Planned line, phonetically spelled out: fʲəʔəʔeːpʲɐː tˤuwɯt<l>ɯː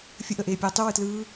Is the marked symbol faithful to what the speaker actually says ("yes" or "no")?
yes